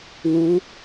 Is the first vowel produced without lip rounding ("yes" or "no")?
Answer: no